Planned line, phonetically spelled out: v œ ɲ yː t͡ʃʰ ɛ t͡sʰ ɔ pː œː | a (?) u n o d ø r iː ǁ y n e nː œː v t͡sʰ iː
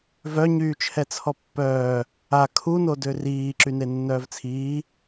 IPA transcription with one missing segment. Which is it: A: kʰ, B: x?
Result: A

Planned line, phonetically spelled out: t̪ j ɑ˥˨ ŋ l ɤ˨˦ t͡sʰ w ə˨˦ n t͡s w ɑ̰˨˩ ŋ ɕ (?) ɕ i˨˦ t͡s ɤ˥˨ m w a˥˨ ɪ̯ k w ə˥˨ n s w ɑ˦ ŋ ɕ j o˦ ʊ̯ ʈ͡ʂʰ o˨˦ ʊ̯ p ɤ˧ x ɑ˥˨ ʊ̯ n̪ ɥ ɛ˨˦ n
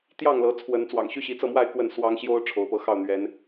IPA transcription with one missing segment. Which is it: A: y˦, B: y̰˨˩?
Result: A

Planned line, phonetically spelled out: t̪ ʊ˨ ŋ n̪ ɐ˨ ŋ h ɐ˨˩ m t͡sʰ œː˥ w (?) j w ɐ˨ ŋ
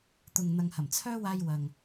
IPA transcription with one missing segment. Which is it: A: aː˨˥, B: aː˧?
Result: B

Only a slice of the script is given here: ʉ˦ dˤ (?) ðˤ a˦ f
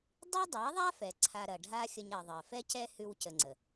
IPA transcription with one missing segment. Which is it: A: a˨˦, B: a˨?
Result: A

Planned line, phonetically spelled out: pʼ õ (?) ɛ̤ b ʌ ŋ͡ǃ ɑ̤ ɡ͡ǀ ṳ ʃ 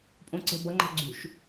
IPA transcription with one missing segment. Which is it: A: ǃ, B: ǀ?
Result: B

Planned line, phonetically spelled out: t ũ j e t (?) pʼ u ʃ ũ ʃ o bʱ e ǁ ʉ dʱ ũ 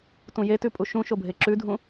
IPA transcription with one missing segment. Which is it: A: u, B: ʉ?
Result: B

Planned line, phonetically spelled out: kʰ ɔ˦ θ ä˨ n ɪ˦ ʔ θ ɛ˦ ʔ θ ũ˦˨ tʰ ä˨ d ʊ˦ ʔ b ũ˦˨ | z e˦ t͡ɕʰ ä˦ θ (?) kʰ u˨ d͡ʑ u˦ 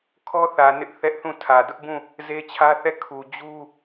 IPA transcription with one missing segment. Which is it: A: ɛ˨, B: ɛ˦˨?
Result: B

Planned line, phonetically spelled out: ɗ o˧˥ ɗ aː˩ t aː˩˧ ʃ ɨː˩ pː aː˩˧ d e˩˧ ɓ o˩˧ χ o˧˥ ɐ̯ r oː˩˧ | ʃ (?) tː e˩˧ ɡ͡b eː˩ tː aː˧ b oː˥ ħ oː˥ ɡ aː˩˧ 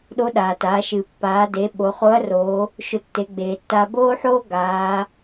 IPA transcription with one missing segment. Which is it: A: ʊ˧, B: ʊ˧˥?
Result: A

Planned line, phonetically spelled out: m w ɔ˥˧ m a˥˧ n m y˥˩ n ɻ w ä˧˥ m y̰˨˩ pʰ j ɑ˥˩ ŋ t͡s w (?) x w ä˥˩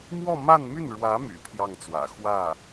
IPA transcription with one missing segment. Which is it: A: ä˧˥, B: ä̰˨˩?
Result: B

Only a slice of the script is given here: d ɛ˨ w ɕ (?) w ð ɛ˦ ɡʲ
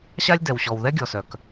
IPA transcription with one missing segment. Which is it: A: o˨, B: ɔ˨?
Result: B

